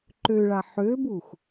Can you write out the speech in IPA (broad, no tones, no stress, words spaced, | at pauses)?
ǃøɭa ħøbux